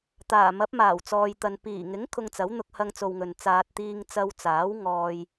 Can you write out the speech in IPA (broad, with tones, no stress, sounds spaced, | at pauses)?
t̪ aː˨˩ m ɐ˨˥ p̚ m aː˨˩ w t͡s ɔː˨ j t̪ ɐ˨ n p iː˨˩ ŋ ɪ˨˥ ŋ kʰ ʊ˧ ŋ t͡s ɐ˨˥ w n̪ ʊ˧ k̚ h ɐ˧ ŋ t͡s o˨ w ŋ ɵ˨ n t͡s aː˧ t̚ t̪ iː˧ ŋ t͡s ɐ˧ w t͡s aː˨˥ w ŋ ɔː˧ j